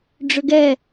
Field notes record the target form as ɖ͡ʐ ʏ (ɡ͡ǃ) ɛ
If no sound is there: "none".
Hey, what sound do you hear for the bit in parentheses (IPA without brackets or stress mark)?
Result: ɡ